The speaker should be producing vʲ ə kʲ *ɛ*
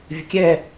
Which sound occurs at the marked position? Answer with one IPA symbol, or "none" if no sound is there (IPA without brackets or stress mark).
ɛ